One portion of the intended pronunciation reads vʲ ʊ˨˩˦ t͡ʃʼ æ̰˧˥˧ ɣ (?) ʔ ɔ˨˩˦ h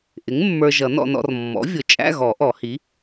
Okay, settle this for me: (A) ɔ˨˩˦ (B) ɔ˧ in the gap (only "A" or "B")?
A